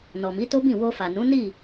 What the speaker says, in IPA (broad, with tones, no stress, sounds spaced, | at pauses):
n ɔ˨ m i˨˦ t o˦ b ĩ˦˨ w o˧ f a˨ n ũ˨˦ n i˦˨